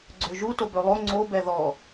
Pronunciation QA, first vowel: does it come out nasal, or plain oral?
oral